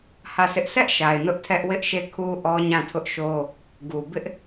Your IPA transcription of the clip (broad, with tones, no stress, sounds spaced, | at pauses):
h ä˦˨ s ɪ˦ ʔ sʰ ɛ˦ ʔ ʃ a˨ ɪ̯ n ʊ˦ ʔ tʰ ɛ˦ ʔ w ɪ˦ ʔ ʃ e˦˨ kʰ u˦ ʔ ɔ˦ ɲ ã˦˨ tʰ ʊ˦ ʔ ʃ o˦ | ɡ u˨ b ɪ˦ ʔ